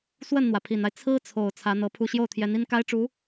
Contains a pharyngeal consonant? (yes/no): no